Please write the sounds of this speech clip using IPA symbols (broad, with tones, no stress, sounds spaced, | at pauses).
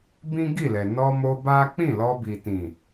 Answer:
b ĩ˦ ɡ i˦˨ l ɛ˨ n ɔ˧ m o˧ b a˦ k͡p ĩ˦˨ l ɔ˧ b i˨ t ĩ˨